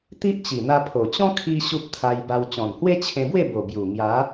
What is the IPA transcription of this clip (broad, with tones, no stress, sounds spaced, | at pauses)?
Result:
t̪ i˦ ʔ t͡ɕ i˨˩ n̪ a˧ pʰ o˨˩ t͡ɕ ɔ̃˦ kʰ i˧ ɕ u˦ p̚ t̪ʰ a˧ j b a˧ w t͡ɕ ɔ̃˨˩ n h w e˦ t͡ɕʰ ẽ˧ b w e˥˧ b o˨˩ b j u˨˩ ŋ j a˨˦